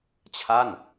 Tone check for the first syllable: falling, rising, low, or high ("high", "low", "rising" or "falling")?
falling